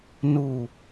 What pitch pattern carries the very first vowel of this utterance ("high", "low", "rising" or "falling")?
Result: low